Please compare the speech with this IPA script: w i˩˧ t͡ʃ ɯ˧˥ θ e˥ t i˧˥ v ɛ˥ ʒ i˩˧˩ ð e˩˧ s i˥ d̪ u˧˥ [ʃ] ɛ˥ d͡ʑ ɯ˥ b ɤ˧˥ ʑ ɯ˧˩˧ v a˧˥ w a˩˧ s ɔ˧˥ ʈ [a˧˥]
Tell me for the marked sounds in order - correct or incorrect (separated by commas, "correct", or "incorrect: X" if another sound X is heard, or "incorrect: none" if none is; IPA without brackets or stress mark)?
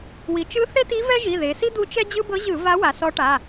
incorrect: t͡ʃ, incorrect: a˩˧˩